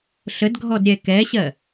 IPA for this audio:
ɬ ə d ɡʱ ɔ d ɾʲ ɛ k ɛ ɕ ɜ

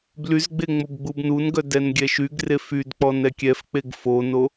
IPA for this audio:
b l y z ɡ͡b e ŋ͡m o b ɡ͡b u b n u n ɡ œ d ɛ n ɡʲ ɛ ʃ y ɡ r e f y d k͡p ɔ n ɛ kʲ ɛ f k͡p e ɡ f o n o

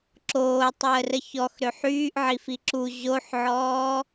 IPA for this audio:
ǁ oː tˤ əː r ə ç ɔ x ɾ ø ħ yː ʔ ʕ i f i ǁ u ʑ o ħ ʕ ɔː

